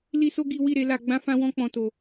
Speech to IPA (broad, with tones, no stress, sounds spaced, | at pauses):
l i˦ s o˦ ɡ i˦ w i˦˨ ɾ e˨˦ l a˧ ɡ͡b ã˦ f ã˦ w ɔ̃˦ k͡p ɔ̃˦ t o˧